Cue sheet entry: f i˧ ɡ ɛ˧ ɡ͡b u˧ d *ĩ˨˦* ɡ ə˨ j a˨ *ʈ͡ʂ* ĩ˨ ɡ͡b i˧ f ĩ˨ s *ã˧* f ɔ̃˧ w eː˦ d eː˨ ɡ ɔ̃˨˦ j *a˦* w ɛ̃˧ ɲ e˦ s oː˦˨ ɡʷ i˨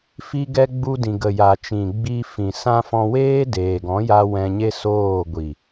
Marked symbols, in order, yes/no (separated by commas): no, no, yes, no